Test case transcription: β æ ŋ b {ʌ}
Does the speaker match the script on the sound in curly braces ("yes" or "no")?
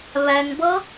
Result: yes